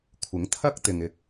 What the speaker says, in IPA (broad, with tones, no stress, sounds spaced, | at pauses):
kʷʰ ɪ˨˥ ŋ t̪ʰ ɐ˥ k̚ t̪ ɪ˨ ŋ ɪ˧ k̚